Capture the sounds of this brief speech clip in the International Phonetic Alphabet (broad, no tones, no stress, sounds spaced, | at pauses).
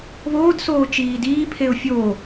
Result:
β oː d s oː t͡ʃ iː d iː pʰ e ʊ̯ fʲ oː